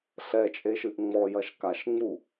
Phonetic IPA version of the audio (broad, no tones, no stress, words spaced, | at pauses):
ɬɛt͡ʃʼeʃɨʔ ŋ͡mɔjɐʃ kaʃŋ͡mu